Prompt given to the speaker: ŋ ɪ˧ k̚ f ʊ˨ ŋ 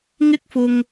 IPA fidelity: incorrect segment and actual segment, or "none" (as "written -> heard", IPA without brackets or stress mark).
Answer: none